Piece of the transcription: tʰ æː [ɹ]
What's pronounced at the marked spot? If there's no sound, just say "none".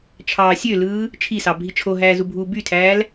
l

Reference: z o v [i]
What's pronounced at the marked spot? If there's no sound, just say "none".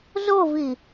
i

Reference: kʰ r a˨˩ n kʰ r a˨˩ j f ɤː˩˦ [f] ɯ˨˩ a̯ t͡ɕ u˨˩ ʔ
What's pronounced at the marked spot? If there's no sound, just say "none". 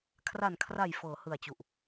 h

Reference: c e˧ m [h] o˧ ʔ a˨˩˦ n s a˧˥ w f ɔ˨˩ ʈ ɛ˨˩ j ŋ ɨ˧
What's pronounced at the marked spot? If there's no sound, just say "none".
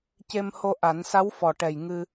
h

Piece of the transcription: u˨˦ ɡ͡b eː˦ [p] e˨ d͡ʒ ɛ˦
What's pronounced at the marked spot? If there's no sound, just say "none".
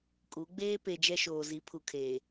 p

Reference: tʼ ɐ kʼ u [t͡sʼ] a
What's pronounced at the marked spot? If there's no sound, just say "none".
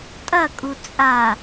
t͡sʼ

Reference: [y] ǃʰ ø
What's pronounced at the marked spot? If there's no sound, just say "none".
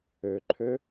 ø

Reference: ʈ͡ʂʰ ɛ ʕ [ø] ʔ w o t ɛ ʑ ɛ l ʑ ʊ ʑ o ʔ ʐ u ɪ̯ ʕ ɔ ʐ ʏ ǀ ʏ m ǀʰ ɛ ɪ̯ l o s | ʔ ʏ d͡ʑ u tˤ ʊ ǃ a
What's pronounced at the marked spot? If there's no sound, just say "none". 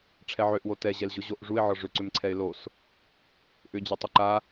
ø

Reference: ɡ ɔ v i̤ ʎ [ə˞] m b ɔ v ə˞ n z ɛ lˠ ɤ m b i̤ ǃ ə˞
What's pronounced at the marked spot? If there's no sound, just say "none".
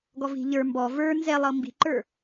ə˞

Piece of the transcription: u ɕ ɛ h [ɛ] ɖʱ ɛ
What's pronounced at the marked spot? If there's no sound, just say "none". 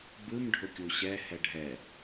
ɛ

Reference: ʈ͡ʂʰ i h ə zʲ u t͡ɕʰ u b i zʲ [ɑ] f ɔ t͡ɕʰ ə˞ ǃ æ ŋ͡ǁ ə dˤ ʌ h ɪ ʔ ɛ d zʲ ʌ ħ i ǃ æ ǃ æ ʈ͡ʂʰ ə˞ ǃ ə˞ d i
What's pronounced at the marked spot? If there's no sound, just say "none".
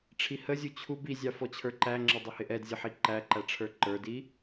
ɑ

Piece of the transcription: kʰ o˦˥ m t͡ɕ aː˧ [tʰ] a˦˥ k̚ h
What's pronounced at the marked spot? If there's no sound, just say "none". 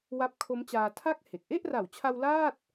tʰ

